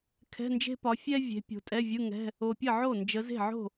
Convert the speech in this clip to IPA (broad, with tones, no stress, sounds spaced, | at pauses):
kʰ ɛ̤˧˥˧ n d͡ʒ e̤˥ p ɒ˨˦ fʲ ɛ˥ vʲ e̤˨˦ pʲ o̤˨˦ tʼ ɛ˧˥˧ vʲ ɯ˧˥˧ ŋ ɛ̤˧˥˧ | o˨ pʲ ə˥˩ ʕ o˥˩ n d͡ʒ ə˨˦ z e̤˥˩ ʕ o̤˥˩